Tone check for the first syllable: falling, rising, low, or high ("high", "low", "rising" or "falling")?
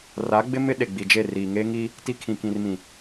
rising